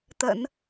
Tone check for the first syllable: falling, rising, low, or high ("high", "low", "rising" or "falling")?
low